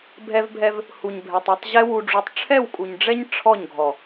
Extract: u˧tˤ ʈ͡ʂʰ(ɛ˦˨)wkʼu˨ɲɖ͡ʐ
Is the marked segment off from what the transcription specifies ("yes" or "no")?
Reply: no